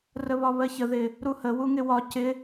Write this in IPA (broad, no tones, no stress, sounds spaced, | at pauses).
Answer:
r ə β ɒ β ɜ ç ə ð ɪ | ɾ u h ə w u ŋ ɪ w ɒ c ɪ